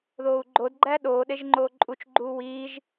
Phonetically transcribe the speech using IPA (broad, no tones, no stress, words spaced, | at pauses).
ðoːu̯ɡ͡ǃod ɡ͡ǃæɗoː ɗeʒŋ͡ǃoːǃʼut͡ʃ ɡ͡ǃuːwiːʒ